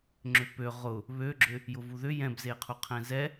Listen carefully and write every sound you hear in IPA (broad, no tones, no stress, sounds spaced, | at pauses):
ŋ͡ǁ ʏ p ø ʁ ʊ | β ø ɡ͡ǁ ʏ | j ʊ v u ð ʏ j ɛ̃ b z e qʰ u qʰ ɛ̃ z ɛ